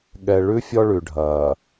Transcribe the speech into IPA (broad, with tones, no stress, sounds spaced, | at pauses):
ɠ ɛ˨ ɭ ʉ˦ fʲ ɔ˦ ɭ ʉ˨ ɖʱ ɐː˨